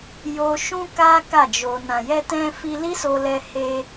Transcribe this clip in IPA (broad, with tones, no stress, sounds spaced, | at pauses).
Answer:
j o˧ ʃ ũ˦ k a˦ k a˦˨ d͡ʒ o˧ n ã˨ j ɛ˧ t ɛ̃˧ f i˧ l i˦ s o˧ l ɛ˧ h e˧